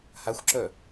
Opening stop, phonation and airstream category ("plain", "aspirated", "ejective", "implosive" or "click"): click